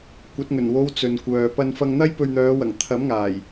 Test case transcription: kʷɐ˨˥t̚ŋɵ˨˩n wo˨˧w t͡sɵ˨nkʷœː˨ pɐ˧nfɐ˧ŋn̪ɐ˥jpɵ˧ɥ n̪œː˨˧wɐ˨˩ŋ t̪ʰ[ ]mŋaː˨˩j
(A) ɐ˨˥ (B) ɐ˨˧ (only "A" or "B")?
A